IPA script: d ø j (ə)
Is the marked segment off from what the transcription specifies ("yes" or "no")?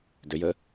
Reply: no